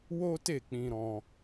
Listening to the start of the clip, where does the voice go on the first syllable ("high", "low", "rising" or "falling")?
high